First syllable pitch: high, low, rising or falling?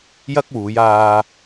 high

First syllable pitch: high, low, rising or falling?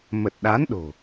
low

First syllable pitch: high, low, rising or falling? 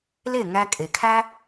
falling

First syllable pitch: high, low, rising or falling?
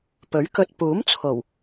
rising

